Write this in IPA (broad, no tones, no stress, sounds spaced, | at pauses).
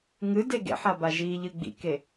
ŋ ɨ d e ɡ ḛ ħ a b a ʒ i ʎ ɨ ɡ͡b ḭ k e